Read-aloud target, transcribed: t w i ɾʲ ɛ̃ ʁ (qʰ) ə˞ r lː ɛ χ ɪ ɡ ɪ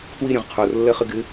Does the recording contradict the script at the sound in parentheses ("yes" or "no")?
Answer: no